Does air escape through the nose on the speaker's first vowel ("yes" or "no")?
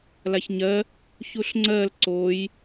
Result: no